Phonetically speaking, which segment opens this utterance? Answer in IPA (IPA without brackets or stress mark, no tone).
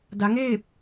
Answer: d